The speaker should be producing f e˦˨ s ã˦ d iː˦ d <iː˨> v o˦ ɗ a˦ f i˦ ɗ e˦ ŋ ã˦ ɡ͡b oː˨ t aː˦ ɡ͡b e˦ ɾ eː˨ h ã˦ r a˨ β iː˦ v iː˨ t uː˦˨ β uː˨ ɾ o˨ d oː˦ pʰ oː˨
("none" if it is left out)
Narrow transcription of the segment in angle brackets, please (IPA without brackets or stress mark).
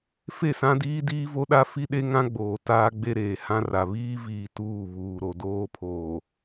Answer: iː˦